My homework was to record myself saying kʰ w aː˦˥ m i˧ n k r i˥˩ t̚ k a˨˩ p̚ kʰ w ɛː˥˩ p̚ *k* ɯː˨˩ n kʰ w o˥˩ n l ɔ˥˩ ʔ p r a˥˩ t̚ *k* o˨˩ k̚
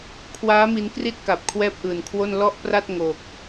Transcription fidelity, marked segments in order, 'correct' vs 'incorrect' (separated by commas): incorrect, incorrect